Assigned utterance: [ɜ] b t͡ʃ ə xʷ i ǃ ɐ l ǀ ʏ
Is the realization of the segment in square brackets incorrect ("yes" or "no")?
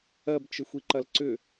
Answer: no